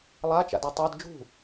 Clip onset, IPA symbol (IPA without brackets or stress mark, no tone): lˠ